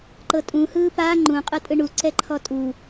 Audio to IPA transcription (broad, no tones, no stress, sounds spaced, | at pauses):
ǃ ɤ tʼ ũ h ɯː p a ŋ͡ǃ ũ qʼ ɯ tʼ ɯ ɳ u ǀ ɛ ǃʰ ɔ tʼ u